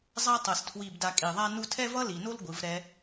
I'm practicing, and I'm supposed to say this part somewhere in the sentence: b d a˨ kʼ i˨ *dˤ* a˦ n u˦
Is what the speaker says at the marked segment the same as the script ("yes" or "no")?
no